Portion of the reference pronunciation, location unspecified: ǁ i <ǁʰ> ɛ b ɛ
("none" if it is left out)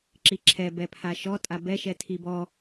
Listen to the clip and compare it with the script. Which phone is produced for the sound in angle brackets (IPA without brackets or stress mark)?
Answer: ǁʰ